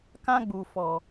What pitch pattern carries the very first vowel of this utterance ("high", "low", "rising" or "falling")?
high